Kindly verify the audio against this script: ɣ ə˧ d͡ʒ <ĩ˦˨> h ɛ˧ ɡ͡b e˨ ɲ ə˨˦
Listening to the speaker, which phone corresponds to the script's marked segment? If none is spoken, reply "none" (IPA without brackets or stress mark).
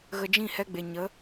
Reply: ĩ˦˨